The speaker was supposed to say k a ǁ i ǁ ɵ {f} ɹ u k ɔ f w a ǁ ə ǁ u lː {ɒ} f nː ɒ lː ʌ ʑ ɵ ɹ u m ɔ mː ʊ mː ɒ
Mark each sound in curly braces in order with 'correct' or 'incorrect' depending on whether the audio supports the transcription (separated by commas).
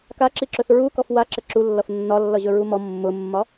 incorrect, incorrect